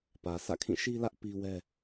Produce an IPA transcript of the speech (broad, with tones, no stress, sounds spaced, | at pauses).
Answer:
p ä˨ s ä̰˦˨ kʰ ĩ˦˨ ʃ i˦ l ä˦ ʔ p i˦ w ɛ˦